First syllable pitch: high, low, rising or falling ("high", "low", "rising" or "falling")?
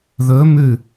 rising